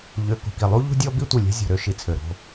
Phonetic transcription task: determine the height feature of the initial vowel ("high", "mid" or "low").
mid